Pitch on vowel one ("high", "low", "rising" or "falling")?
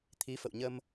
rising